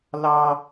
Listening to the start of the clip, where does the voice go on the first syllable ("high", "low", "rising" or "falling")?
high